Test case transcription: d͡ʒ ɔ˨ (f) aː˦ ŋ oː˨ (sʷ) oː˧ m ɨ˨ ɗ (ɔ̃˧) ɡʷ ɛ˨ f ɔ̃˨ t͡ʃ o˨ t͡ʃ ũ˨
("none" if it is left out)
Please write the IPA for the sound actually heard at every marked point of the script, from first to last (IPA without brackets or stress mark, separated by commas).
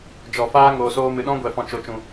f, s, ɔ̃˦